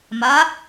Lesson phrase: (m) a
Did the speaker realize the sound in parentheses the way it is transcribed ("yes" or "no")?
yes